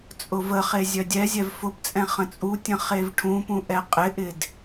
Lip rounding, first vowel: rounded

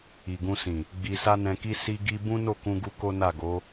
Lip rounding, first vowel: unrounded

